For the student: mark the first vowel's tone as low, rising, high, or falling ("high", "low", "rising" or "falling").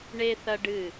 high